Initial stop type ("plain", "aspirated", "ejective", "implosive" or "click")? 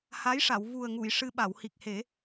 implosive